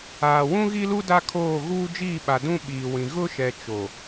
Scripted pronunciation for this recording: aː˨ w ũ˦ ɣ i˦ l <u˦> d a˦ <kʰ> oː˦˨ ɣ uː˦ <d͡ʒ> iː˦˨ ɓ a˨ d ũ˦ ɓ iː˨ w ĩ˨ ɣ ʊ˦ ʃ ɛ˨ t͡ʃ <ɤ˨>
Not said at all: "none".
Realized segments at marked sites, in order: u˦, kʰ, d͡ʒ, o˨

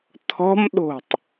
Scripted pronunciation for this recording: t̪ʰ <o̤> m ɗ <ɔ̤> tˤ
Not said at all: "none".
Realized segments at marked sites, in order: ɔ̤, o̤

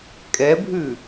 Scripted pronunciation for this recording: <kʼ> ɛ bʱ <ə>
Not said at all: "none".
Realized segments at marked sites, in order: kʼ, ʉ

